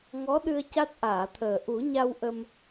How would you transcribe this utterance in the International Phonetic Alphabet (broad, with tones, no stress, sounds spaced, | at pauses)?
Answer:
ŋ ɔ˧˥ ɗ ɨ˧ ə̯ c a˦˥ t̚ ʔ aː˨˩˨ t̪ʰ əː˨˩ ʔ u˨˩˦ ɲ a˧ w ʔ ə˧ m